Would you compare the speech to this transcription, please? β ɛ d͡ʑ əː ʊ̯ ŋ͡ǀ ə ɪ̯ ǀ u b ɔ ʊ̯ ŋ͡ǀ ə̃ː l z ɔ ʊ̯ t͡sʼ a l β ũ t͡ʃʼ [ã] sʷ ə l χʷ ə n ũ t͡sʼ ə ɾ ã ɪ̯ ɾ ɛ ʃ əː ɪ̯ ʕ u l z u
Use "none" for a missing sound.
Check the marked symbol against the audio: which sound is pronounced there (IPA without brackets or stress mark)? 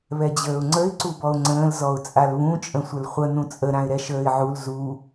ə̃